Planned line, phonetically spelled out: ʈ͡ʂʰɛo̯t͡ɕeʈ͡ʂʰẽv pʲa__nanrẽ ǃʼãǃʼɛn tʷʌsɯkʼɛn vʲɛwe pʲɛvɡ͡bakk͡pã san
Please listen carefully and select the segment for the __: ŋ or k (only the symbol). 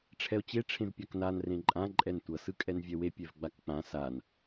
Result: k